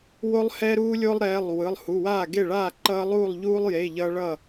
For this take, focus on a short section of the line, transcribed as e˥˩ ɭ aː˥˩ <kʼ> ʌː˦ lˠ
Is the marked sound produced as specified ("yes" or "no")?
no